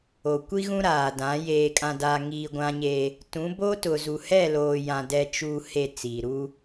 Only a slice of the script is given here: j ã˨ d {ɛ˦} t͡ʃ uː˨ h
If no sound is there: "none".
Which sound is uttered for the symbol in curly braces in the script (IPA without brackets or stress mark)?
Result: ɛ˨